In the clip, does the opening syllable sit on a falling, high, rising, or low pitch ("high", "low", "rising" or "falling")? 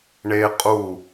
high